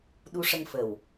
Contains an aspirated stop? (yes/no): no